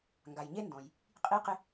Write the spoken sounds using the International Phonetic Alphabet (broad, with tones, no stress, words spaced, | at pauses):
ŋɡa˩jɲe˥ndɔ̃˩j | qʼi˧qɪ˧